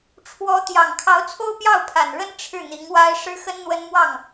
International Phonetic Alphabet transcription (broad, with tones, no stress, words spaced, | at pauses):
ʈ͡ʂʰwɔ˧˥t̪jɑ˨˩ŋ kʰɑ˧˥ʊ̯t͡sʰo˥ʊ̯ pjɑ˥˩ʊ̯pʰa˨˩nɻə˥n ʈ͡ʂʰɻ̩˥˩n̪i˧˥ŋwa˥ɪ̯ ʂɻ̩˥xə˥nn̪wə˥n mwɑ˥˩ŋ